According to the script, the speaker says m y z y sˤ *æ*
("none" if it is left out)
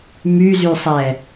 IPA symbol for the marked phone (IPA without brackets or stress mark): ɛ